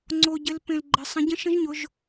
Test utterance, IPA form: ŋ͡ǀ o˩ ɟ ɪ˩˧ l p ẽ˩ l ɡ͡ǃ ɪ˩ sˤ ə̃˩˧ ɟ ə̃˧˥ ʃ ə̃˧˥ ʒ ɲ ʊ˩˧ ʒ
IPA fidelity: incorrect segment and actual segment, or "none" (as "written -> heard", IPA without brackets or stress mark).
none